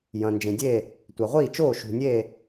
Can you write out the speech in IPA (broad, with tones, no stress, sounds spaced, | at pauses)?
j ɐ̃˩ n d͡ʒ ẽ˩ dʲ e˥˩ | tʷ a˩ ʁʷ iː˥˩ t͡ʃ oː˥˩ ʃ ṳ˩ nʲ e˥˩